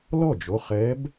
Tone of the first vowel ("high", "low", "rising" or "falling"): falling